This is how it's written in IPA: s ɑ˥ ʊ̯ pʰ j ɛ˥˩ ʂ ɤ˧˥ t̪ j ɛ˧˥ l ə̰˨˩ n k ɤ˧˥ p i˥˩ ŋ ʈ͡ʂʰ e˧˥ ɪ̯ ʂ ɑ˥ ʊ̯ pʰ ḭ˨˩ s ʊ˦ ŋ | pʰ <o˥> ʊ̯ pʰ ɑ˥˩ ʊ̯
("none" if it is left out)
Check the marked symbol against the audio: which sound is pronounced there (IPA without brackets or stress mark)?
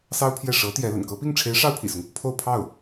o˥˧